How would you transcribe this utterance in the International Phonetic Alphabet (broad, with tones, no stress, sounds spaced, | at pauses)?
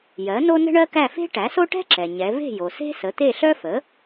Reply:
j ɜ˩˥ n o˥ n ə̤˥ ɳ ɜ˥ k æ˥˨ f e̤˥ ʈ æ˩˥ s o˥ ʈ ɛ̤˥ ǁ ɛ˩ ɲ ɛ˩˧ v e̤˥˨ j o˩ s e̤˥ s ə˩˥ t̪ e˥˨ ɬ œ˥ f ə˩˥